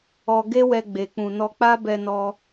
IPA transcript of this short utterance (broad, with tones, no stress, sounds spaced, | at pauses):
ɔ˧ ɡ e˦ w ɛ˧ ɡ͡b e˨ k͡p ũ˨ n ɔ˧ k͡p a˦ b ɛ˧ n ɔ˧